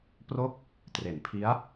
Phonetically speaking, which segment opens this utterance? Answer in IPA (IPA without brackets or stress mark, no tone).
p